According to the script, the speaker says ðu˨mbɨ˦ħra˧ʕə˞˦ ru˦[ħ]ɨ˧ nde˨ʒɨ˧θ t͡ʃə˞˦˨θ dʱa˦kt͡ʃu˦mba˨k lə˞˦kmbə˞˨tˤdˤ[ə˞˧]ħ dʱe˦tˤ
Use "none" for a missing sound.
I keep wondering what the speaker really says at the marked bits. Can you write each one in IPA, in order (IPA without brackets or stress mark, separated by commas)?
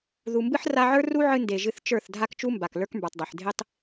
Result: ʕ, ə˞˨